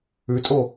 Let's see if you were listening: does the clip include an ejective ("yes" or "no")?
yes